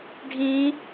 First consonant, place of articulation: retroflex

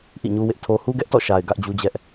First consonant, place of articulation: glottal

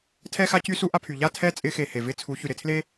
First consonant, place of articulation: alveolar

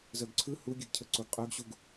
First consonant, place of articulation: alveolar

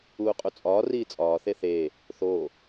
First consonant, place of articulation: uvular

